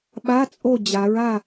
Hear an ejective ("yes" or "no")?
yes